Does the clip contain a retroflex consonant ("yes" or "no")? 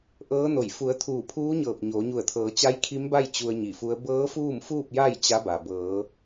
no